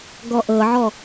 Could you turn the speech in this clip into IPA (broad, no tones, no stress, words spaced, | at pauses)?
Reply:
ɡɔʔɤʕɔ